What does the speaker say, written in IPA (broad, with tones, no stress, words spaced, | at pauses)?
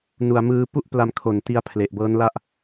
nu˨˩a̯mɯː˧ pu˥˩ʔ pla˧mkʰo˨˩n ti˦˥a̯pʰle˨˩ʔ bɤː˦˥nla˥˩ʔ